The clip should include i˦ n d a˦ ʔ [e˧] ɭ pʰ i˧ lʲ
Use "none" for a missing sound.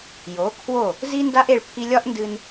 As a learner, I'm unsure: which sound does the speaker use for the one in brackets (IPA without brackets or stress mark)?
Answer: e˧